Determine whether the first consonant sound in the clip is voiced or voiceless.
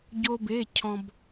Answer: voiced